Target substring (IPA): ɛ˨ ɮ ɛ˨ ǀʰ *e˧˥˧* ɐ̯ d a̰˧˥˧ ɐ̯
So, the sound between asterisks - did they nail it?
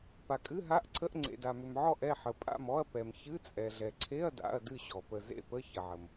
yes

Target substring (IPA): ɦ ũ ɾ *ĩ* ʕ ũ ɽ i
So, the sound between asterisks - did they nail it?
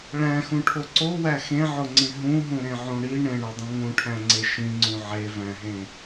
no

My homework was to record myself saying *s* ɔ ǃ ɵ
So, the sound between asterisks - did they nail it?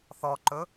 no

